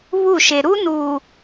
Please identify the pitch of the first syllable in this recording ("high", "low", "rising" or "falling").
falling